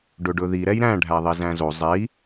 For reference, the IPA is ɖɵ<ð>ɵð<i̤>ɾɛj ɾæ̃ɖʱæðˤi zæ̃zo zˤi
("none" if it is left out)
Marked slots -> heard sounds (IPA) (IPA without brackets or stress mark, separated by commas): ɖ, i